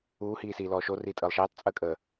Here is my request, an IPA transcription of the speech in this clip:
uːhiːsiːlɔː ʃoriːtʼəːlˠ ʃeːtˤt͡sʼəːkʼəː

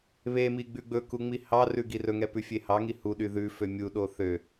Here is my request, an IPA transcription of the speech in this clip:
βe miɡ͡bʉɡ͡bɵku ŋ͡mihɑrʉ ɡirɵŋɛ pʉfʲehɑŋi huɗy ðʉfø mʲuɗo θø

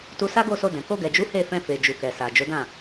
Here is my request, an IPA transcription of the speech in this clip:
tu˧sa˦ɡo˦˨so˧ dɛ̃˨ ko˧ɡɛ˨d͡ʒu˨˦ he˦˨fɛ̃˧fe˨ d͡ʒu˨kɛ˨ sa˨d͡ʒo˨˦dã˦˨

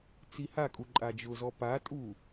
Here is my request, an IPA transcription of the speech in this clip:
t͡sihakʼu ǃʼad͡ʒʊzɔ patʼu

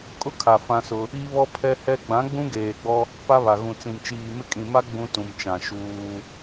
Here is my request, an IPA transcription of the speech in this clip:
kʼʊ˦kʰa˨ fã˦sʊ˦ | i˦βɔ˦ pʰɛ˦hɛ˦ ɡ͡bã˨˦ɡ͡bũ˦ɡeː˨ɡ͡bɔ˦ | pa˦βa˨ ɣũ˨t͡sĩ˨mt͡ʃiː˨mɪ˦ kʼĩ˨ma˦ ɡ͡bũ˦ tũ˨mt͡ʃã˨ ʃuː˦

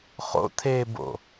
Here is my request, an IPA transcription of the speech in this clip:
χo̰tʰeːbo̰

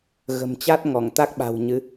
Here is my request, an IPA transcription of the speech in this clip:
ɣə̤˨˩mt͡ɕa˦˥t̚ ŋɔ˧˩ŋt̪a˦˥k̚ɓa̤˨˩w ɲɨ˨˦

